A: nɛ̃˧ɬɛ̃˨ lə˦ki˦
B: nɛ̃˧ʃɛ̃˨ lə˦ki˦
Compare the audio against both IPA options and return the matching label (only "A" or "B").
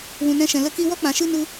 B